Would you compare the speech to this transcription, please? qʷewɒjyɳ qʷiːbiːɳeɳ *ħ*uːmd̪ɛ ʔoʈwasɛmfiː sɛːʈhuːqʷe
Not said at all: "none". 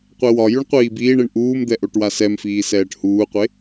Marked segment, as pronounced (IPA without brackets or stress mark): ʔ